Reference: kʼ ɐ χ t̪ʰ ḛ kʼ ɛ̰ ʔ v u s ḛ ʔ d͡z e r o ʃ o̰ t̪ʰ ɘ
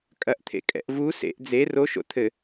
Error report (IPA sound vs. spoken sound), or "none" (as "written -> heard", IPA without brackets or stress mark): χ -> ʔ